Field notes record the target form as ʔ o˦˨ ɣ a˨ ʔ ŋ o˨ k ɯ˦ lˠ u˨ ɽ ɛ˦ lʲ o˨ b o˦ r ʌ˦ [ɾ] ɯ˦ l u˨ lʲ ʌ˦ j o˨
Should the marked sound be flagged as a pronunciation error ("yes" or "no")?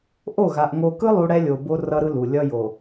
no